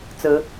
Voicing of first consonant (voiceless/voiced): voiceless